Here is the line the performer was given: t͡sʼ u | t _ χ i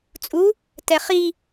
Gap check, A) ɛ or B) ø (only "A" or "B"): A